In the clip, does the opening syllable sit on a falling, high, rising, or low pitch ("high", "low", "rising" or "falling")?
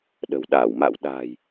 low